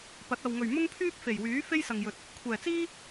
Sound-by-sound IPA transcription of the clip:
p ɐ˨˥ t̚ ɐ˨ w ŋ ɵ˨˩ ɥ m ʊ˥ ŋ pʰ yː˥ p̚ f e˨˩ j w yː˨˥ f e˥ j s ɐ˨ ŋ j ɵ˨ t̚ | kʷʰ ɛː˨˩ t͡s iː˥

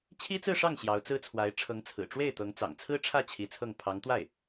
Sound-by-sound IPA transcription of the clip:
t͡ɕʰ i˥ t͡s ɹ̩˥˧ ʂ ɑ˥˩ ŋ ɕ j ɑ˧˥ ʊ̯ t͡s ɹ̩˥ t͡sʰ w a˧˥ ɪ̯ ʈ͡ʂʰ ɤ˧˥ ŋ t͡sʰ ɹ̩˨˩ ʈ͡ʂ w e˥˩ ɪ̯ t̪ ɤ˧˥ ŋ t͡s ɑ̰˨˩ ŋ t͡sʰ ɹ̩˥ ʈ͡ʂʰ ä˥˩ t͡ɕʰ i˧˥ t͡sʰ ɤ˥˩ ŋ pʰ ɑ˧˥ ŋ t̪ w a˥˩ ɪ̯

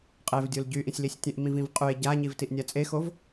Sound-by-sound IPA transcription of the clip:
qʼ e v dʲ o l ɟ y ʔ ĩ sʲ l i sʲ tʲ ẽ ʔ m ĩ v ĩ v qʼ y e̯ ɟ a ɲ i v t i ʔ nʲ a t͡sʼ e x o v

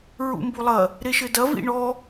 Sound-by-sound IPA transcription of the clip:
ɹ ṵ m b u lˠ ɐ | ɾ e ʃ ɘ d ɐ v ḭ ɳ ɔ

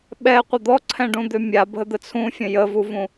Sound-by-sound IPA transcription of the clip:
ɓ ɛ qʷ ə d̪ ɔ ǀʰ ɛ̃ ɖ ũ d̪ ø mʲ a bʱ ə d̪ ə t͡sʰ ũ fʲ ə̃ j ə v u v ũ

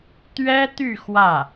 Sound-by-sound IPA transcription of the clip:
t̪ ɥ ɛ˥ t̪ y˥˧ x w ä˥˩

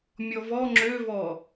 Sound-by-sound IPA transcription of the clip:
mʲ ɔ v ɔ ŋ͡ǁ ø v ɔ

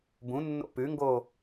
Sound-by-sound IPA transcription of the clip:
b ũ nː o̰ p ʉ ŋ ɡ o

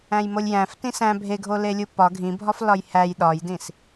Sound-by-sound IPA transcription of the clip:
æ̃ j m o lʲ j æ̃ f t ĩ s æ̃ bʱ e ɡʱ o l e lʲ u p ɒ ɡʱ ĩ bʱ ɒ f l ɒ j h æ j ɗ ɒ j d ĩ s

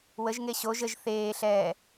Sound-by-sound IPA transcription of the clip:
w ə ʒ ŋ e ɕ o ʒ ə ʒ θ eː ɬ ɛː

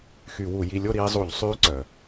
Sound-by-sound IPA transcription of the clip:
x y˧˩˧ w u˧˩˧ j i˧ lʲ o˥˨ ɾ iː˧ zˤ u˧˩˧ ʎ sˤ yː˧˥ ǀ œ˩

